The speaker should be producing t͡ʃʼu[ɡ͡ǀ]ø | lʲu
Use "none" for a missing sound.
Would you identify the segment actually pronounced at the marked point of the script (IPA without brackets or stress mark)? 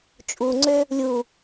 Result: ŋ͡ǀ